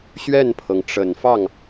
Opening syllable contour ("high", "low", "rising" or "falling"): falling